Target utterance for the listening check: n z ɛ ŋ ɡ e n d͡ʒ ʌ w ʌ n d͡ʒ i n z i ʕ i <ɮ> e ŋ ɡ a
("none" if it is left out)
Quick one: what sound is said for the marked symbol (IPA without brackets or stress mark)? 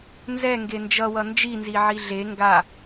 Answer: ɮ